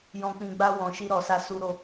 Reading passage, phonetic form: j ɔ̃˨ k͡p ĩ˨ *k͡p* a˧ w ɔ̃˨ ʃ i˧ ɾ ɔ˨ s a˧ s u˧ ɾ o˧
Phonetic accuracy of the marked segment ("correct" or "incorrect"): incorrect